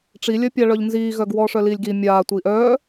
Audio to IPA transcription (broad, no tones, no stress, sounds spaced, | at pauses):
ʈ͡ʂ i lʲ œ pʲ a ɭ œ ʎ n z iː ɣ œ ɡ w ɔː ʂ œ l iː lʲ ɡ i mʲ aː tʷ iː ʔ œː